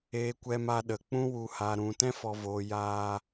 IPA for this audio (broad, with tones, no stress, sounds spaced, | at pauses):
e˧ kʷ ɛ˧ m a˧ ɗ ə˨ k͡p ũ˦ w u˨ h a˨ ɾ ũ˨ t ɛ̃˦ f ɔ˨ v oː˨ j aː˧